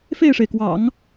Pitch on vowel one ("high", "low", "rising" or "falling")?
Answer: falling